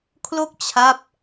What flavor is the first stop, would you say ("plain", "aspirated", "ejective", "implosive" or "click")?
aspirated